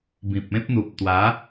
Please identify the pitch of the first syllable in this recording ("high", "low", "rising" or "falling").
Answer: low